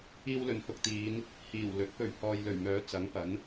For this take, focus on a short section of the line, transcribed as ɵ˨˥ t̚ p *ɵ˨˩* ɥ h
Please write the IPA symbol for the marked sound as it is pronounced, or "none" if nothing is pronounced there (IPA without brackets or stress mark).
ɵ˨˩